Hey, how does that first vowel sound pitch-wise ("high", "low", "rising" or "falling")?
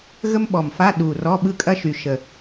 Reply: high